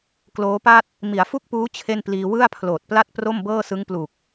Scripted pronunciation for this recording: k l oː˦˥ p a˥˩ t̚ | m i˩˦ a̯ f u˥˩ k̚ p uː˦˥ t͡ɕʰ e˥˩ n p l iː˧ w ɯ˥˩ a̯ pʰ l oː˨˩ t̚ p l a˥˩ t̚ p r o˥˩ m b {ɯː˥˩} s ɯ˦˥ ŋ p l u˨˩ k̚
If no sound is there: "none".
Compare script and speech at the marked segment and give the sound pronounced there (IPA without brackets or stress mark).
ɤː˥˩